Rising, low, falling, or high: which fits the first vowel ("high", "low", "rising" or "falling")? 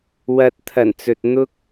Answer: low